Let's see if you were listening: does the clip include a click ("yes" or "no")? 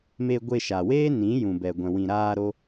no